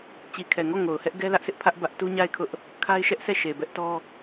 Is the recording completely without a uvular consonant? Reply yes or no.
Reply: yes